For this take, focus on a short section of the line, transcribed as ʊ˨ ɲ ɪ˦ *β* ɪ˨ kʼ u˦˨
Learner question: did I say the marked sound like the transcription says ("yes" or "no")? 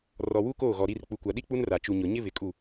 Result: yes